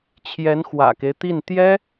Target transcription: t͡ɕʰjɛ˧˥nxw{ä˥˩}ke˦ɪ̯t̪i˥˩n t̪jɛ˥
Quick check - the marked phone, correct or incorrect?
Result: incorrect: ä̰˨˩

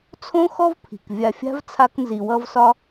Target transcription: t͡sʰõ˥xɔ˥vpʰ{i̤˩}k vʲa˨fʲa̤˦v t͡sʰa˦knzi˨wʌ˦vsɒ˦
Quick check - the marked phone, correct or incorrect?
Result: correct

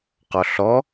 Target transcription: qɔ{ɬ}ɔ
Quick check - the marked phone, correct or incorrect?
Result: correct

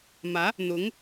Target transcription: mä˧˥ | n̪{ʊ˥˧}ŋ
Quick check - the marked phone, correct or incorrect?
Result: incorrect: ʊ˧˥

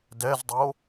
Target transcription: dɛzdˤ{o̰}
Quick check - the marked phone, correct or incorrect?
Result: incorrect: o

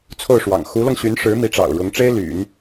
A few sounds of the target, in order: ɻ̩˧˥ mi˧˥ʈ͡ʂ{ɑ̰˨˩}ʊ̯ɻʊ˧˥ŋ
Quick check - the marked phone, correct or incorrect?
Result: correct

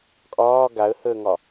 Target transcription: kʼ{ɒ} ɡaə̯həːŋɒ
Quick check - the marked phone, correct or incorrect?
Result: incorrect: ɒː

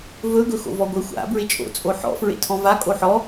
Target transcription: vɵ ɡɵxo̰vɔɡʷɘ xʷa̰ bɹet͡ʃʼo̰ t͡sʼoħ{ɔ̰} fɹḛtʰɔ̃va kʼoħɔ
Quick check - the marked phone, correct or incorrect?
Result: correct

